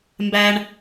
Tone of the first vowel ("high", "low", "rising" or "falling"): high